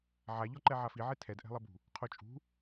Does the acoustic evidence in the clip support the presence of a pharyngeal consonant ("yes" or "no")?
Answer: yes